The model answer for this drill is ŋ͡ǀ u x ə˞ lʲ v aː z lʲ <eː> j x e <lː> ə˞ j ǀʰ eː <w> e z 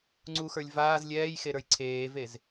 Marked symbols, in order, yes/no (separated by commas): no, no, no